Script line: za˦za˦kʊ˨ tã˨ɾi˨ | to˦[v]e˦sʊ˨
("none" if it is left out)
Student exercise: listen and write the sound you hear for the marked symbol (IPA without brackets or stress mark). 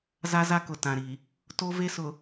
v